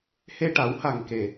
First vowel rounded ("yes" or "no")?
no